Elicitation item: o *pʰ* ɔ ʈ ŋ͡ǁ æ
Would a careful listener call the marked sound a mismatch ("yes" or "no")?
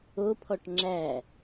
no